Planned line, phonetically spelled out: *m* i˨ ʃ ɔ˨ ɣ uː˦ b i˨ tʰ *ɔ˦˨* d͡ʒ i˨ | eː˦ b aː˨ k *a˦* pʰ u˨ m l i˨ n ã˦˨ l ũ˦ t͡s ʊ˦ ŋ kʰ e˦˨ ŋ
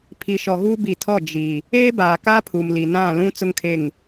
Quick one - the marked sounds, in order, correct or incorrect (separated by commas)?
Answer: incorrect, correct, correct